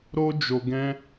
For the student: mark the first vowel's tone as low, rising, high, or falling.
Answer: high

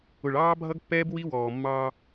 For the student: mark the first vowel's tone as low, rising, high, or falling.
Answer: low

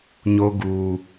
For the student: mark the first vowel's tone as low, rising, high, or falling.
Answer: high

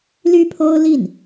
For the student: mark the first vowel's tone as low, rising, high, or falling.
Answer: high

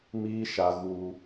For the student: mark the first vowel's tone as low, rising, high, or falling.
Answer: high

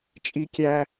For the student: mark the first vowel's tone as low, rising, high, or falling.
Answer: high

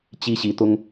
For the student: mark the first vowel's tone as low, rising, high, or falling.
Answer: high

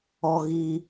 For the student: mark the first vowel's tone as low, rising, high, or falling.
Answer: low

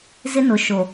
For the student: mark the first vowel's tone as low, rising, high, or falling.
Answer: high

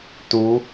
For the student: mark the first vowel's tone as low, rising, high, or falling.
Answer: rising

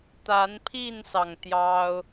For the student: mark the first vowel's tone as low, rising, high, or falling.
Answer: rising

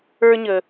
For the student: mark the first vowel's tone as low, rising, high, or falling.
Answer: high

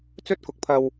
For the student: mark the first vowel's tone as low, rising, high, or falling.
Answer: high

